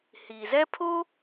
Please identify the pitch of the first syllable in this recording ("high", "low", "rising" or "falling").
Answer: low